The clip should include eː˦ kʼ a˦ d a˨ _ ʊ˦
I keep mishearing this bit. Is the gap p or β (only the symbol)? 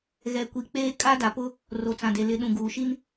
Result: p